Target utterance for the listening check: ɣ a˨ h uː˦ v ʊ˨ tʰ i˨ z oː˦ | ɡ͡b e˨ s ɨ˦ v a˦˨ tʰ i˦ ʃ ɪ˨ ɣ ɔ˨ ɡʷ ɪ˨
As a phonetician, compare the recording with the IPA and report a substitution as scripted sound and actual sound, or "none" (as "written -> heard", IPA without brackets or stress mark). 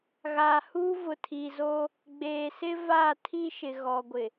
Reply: ɨ˦ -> ɪ˦